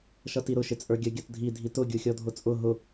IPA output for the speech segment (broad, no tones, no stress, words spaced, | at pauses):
ʃʌtiɾʊ ʃɪt͡sʼə˞ɡʲə ɡʲʌtdʱi dʱitʊ ɡʲuxʲɔdʱʊt͡sʼʊ ɦʊ